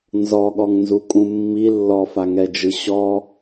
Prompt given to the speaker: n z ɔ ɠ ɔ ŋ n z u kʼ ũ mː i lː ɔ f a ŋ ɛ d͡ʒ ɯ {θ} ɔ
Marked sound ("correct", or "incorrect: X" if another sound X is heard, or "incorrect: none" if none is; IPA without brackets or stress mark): incorrect: ɕ